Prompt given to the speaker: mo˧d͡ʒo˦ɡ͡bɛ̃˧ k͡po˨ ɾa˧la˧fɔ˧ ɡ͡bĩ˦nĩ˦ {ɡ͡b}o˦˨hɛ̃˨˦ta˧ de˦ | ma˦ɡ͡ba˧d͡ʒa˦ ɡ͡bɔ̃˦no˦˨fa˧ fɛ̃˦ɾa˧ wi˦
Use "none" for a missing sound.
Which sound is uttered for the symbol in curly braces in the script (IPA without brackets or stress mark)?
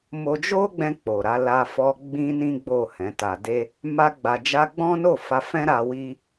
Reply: ɡ͡b